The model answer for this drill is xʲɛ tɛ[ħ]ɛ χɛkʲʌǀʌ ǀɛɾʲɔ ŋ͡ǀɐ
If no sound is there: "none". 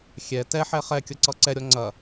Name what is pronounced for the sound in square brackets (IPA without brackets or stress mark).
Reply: ħ